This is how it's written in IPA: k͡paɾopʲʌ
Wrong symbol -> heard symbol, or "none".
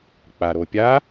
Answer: ʌ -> a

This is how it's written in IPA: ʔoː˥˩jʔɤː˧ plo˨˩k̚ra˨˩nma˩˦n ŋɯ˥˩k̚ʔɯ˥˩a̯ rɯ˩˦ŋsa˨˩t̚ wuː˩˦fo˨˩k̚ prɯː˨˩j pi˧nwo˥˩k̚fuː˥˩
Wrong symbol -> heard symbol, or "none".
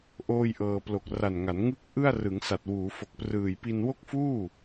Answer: m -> ŋ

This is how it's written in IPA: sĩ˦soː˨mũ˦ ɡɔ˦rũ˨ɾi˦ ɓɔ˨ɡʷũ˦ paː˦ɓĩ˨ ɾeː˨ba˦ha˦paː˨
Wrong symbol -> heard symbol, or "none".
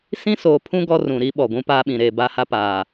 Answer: m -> pʰ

